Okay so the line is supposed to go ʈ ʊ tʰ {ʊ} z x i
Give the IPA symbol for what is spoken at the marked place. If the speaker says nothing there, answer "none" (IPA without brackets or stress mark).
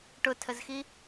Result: ə